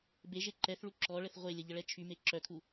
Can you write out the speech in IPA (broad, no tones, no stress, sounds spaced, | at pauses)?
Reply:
b e ʒ e ǃ ɛ θ ɭ u ǁ ɔ ɭ ə θ ʁʷ e lʲ ə ʎ ə ɭ ɛ t͡ʃʰ y m e ǁ œ kʰ u